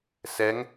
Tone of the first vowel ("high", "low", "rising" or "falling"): rising